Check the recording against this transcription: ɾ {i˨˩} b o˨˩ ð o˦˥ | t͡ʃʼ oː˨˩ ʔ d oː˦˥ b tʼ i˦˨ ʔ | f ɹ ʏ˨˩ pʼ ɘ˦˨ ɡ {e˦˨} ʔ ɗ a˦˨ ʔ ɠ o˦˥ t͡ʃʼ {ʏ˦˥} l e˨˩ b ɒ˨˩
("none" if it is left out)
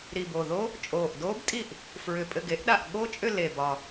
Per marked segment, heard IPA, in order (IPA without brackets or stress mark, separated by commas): i˨˩, e˦˥, ʏ˦˨